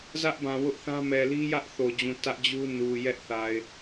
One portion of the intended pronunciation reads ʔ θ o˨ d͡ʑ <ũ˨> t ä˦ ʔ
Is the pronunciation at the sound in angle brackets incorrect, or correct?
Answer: correct